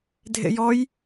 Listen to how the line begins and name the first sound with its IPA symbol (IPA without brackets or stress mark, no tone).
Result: dʱ